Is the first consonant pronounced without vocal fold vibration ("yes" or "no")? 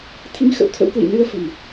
yes